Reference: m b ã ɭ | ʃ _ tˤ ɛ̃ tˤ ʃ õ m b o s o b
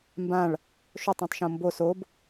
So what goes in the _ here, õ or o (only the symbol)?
o